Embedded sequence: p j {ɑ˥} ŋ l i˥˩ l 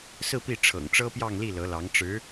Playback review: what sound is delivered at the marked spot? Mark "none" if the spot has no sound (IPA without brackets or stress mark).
ɑ˥˧